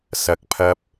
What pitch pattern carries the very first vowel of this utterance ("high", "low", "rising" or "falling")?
rising